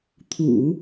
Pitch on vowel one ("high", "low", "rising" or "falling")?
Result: low